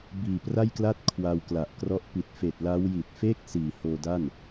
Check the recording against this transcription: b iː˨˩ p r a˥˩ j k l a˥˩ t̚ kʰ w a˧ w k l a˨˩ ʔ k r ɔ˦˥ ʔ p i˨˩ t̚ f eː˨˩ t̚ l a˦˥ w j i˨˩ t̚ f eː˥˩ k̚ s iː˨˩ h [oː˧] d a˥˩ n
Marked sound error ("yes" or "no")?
no